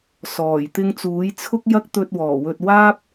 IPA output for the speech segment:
sɔː˨˩j t̪ɪ˧ŋt͡suː˨˥jt͡sʰʊ˥k̚ jɐ˥k̚t̪ɵ˧t̚wɔː˨˩ wɵ˨t̚waː˥p̚

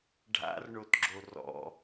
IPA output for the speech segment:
ɖʱa̰rɳotɡ͡ǁo rɔ̰

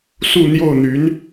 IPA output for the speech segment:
su˥˧n̪jo˥˩ʊ̯n̪y˧˥n

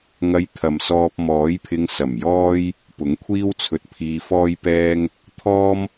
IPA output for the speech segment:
ŋɐ˧jt̪ʰɐ˨msɔː˧p̚ mɔː˨˥jpʰɪ˧ŋsɐ˨˩m jɔː˥j | pʊ˨˥ŋkʷʰiː˥wt͡sʰɵ˧t̚ pʰiː˧fɔː˥jpɛː˥ŋ | t̪ʰɔː˥m

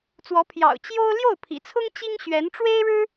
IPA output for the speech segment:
t͡swɔ˧˥ pʰjɑ̰˨˩ʊ̯ t͡ɕjo˥ʊ̯ ljo˥˩ʊ̯pʰḭ˨˩t͡sʰʊ˥ŋ t͡ɕi˥ŋɕɥɛ˧˥n ʈ͡ʂwe˥ɪ̯ɻɻ̩˥

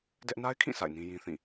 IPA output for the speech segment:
dɛ˦ʔ na˦ɪ̯kʰĩ˦˨ sa̰˦˨ɪ̯nĩ˦ jĩ˦θĩ˦˨

